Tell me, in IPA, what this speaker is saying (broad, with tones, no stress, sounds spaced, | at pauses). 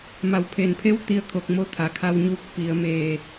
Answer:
m a˩ w pʰ eː˩ n pʰ e˧˥ w t̪ i˧ ə̯ kʰ o˧˩ k̚ m o˧ t̪ʰ a˩ kʰ a˧ w ɲ uː˧ k̚ p i˩˧ ə̯ m eː˧˩